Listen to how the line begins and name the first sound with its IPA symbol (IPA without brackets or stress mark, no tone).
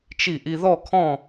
t͡ʃ